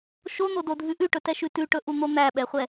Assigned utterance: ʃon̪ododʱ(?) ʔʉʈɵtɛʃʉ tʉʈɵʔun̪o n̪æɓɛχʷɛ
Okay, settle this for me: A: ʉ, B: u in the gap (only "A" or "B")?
A